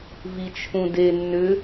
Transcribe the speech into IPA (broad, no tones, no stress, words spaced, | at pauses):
vit͡ʃʰũde nːʏ